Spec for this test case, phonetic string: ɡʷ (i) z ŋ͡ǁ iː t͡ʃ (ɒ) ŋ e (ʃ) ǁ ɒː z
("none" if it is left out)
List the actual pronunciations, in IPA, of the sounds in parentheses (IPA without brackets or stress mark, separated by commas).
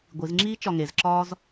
i, ɒ, z